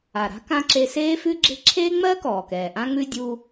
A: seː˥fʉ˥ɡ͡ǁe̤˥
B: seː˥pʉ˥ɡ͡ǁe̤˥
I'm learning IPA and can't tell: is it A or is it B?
A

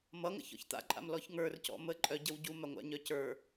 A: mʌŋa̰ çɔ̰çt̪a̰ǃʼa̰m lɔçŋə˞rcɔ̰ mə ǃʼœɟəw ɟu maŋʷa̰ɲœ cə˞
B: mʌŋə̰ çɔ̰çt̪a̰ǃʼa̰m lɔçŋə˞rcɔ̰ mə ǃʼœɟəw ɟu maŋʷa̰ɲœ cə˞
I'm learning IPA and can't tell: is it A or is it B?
B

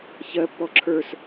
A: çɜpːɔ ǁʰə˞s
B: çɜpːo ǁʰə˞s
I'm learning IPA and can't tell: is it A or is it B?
A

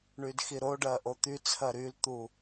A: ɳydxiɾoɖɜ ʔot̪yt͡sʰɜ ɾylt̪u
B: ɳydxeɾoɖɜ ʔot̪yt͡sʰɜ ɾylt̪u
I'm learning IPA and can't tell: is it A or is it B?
A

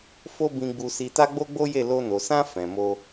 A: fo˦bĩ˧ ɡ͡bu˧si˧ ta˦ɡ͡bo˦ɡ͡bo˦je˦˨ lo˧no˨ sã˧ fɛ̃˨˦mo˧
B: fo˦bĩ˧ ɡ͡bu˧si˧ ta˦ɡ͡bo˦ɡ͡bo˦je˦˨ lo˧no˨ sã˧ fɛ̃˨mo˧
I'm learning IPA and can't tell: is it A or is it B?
B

